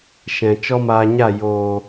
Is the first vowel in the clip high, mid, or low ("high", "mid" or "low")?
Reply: mid